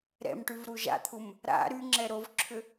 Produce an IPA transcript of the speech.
ɾ ɛ̰ m ʈ y v ɾ u ʒ a̰ t̪ʰ u m | ɾ a̰ ɾ y ŋ͡ǁ ɛ ɾ o v ǁʰ ʏ

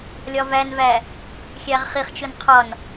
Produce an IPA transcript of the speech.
lʲ ɒ v æ n v æ | xʲ æ ʁ χ i χ t͡ʃ ʊ n qʰ ɒ n

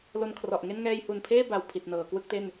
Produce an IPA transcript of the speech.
l o˧ n kʰ r ɔ˨˩ ʔ ŋ e˥˩ n ŋ ɛː˧ j h u˨˩ n pʰ eː˥˩ b a˧ w pʰ i˨˩ t̚ n ɤː˩˦ k w ɯ˥˩ k̚ t e˥˩ n

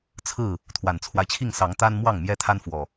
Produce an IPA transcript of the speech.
t͡sʰ ɹ̩˥˨ | t̪ʰ w a˨˩ n t͡sʰ w a˦ ɪ̯ t͡ɕʰ i˥˨ ŋ s ɑ˨˦ ŋ t̪ a˦ n m w ɑ˥˨ ŋ m j ɛ˦ t̪ʰ a˦ n f w ɔ˨˩

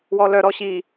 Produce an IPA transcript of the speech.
w ɔ l œ ɾ ɔ ɕ i

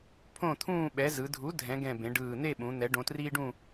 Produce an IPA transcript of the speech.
pʰ õ˥˨ t̪ʰ ũː˥˨ ɓ ɛ˩˥ z ɯ˩˧ dʱ u˩˥ dʱ ɛ̃˩˧ ɡ ɛ̃˨˩ b ẽ˩˧ ɖ ɯː˨˩ n̪ e˥˨ ɓ ũ˩˧ n̪ ɛ˩˧ ɖ õ˩˧ t r iː˦ ɖ ũ˥˨

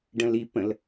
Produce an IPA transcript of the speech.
ɖ ə̃ l i p ə̃ l

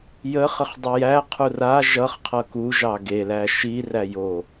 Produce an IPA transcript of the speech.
j ə χ ə χ dˤ u j æ qʰ u r a ʒ ʌ χ qʰ ʌ k u ʒ ɑ ɡ e l æ ʃ i r æ j o

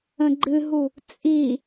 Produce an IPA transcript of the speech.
ə̃ ɡ͡ǃ ɨ ɦ u | t͡sʼ i

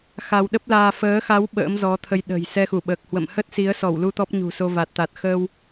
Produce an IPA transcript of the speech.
x a˧ w ɗ ə˦˥ p̚ l aː˧ f əː˨˦ x a˨˦ w ɓ ə̰ː˧˥ m z ɔ˨˦ t̪ʰ ə˧ j ɗ ə̤˨˩ j s ɛ˧ x u˧˩ ɓ əː˨˩ k̚ h w ə̰˧˨ m h ə˦˥ t̚ s i˨˦ ə̯ s ɔ˧˩ w l u˧ t̪ ɔ˦˥ p̚ ɲ ṳ˨˩ s o˧ v a˨˩ t̚ t̪ a˨˩ t̚ x əː˧ w

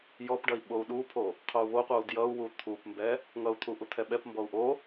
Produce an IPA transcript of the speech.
j ɔ p ɖ ʌ i̯ ɓ o u̯ ɗ u pʰ o | qʰ o u̯ β o qʷ ʌ u̯ d j ʌ u̯ w u t̪ʰ u p m b ɛ | ŋ ʌ u̯ t̪ʰ u ʔ u t̪ʰ ɛ ɓ ɛ p m b ɔ u̯ ʔ o

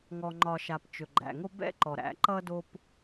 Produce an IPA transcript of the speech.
ŋ ɔ˨ ŋ͡ǃ ɒ˨ ʃ a˨ p t͡ʃ ɵ˨ ɡ͡ǃ æ̰˨ ŋ o˦ b ɛ̰˦ ǃ ɔ˨ ɾ æ̰˨˦ ǃ ʌ˦ d o˦ p

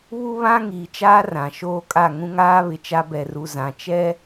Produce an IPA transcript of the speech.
β u˦ β ã˦ ŋ iː˨ t͡ʃ aː˦ r ã˨ ʃ oː˦ kʼ a˦˨ ŋ ũ˦ ŋ aː˦ β ɪ˨ t͡ʃ a˦ b ɛ˨ r u˨ z ã˨ t͡ʃ ɛ˦

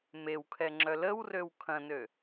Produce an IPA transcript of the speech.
m e w kʰ ɛ ŋ͡ǁ œ l ə w r ø w kʰ ɐ̃ n ø

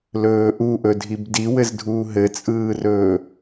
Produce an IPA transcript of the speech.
l ɵː ʔ u ʔ ɵ dʱ i b d i w ɘ z dʱ uː ɦ ɘ t͡sʼ ɯː r ɵː

